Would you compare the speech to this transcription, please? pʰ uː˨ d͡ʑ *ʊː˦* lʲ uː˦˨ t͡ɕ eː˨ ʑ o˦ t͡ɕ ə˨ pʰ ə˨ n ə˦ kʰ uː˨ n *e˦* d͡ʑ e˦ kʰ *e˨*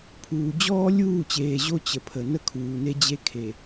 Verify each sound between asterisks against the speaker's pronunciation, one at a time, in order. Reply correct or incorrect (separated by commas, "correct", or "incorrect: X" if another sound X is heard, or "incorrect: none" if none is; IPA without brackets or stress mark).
incorrect: ɔː˦, correct, correct